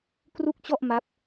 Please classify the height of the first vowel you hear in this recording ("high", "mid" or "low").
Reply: high